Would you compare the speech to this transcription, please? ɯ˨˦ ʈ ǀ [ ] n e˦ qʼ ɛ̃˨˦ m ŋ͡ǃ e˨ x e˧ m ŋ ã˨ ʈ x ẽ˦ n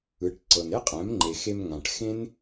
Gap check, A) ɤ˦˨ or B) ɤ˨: B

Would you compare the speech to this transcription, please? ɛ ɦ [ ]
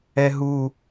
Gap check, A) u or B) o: A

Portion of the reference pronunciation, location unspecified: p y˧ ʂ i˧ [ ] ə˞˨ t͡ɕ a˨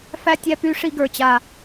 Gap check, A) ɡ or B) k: A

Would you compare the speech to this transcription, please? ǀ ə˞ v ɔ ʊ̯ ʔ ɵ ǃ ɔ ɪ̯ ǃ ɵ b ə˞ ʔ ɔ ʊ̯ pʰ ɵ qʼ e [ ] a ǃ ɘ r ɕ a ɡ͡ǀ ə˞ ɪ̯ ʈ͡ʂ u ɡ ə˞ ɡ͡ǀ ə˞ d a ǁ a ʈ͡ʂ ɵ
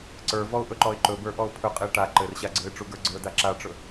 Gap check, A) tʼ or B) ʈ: B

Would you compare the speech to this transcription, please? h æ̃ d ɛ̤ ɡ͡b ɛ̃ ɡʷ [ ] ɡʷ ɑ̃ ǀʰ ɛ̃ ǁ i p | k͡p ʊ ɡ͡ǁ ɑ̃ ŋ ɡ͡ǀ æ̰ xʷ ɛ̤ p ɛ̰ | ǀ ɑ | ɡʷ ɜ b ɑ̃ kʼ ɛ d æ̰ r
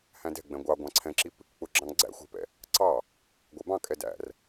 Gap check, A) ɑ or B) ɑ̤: A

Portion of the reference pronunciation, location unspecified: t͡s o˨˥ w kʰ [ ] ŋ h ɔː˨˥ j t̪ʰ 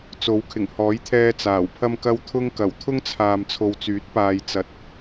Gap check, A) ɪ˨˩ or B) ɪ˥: A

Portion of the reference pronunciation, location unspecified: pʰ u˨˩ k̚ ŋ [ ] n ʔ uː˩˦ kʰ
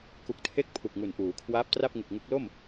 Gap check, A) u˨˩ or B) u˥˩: A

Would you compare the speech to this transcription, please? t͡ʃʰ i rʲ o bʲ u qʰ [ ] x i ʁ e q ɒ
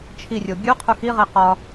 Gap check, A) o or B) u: B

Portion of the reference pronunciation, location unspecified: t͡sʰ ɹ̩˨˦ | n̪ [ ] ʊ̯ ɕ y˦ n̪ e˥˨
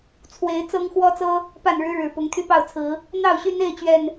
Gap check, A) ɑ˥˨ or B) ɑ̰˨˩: A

